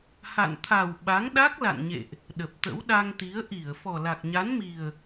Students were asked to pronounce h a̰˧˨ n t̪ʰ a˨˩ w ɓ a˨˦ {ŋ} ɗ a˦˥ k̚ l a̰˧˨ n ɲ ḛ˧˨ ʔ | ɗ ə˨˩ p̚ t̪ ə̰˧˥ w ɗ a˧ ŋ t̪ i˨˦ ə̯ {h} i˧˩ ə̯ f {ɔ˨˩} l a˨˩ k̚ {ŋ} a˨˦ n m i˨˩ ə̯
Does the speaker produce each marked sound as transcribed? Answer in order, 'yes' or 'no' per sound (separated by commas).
yes, no, yes, no